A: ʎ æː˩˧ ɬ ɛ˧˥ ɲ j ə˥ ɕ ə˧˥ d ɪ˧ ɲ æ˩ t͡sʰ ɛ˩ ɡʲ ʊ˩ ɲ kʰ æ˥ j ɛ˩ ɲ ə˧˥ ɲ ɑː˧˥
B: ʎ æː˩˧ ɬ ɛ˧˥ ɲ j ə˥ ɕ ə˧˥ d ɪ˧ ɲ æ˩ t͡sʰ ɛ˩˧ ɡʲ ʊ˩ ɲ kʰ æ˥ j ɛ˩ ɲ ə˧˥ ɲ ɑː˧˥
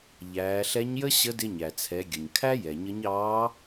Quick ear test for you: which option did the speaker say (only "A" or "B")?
B